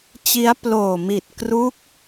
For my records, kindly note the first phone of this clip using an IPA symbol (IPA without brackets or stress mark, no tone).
t͡ɕ